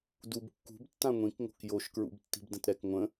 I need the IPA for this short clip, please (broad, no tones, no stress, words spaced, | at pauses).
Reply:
dub kːṳbtːã ŋʷĩkŋo̤k joʃkɹṵbtːi̤b də̃tɾɛk ŋʷə̃